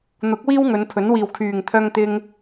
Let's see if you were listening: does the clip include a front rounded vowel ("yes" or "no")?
yes